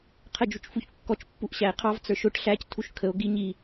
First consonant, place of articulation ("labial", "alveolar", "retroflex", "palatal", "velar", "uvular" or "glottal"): uvular